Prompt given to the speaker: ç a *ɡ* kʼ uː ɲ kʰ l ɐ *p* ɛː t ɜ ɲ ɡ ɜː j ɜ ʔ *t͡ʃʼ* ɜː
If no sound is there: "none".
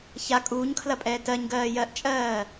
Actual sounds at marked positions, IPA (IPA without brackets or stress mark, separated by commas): none, pʼ, t͡ʃʼ